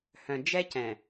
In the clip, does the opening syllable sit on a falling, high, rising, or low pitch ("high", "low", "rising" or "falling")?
low